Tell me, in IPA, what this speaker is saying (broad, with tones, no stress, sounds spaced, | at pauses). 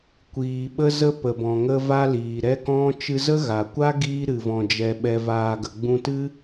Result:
kʷ iː˨ ɓ ə˧ z ə˧ p ə˨ b ɔ̃˨ ŋ ə˧ v a˧ l iː˨ ɾ ɛ˦ k ɔ̃˦ t͡ʃ ɨ˧ z ə˦ ɣ a˨ kʷ a˦ ɡ iː˧ ɾ ɨ˨ v ɔ̃˨ d͡ʒ ɛ˨ ɓ ɛ˨ v aː˨ ɡ ə˨ ɡ͡b ũ˧ t ɨ˦